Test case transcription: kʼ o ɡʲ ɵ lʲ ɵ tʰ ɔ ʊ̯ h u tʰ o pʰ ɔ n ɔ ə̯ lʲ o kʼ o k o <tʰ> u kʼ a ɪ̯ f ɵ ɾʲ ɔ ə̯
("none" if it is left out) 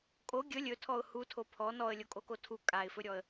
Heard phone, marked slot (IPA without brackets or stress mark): tʰ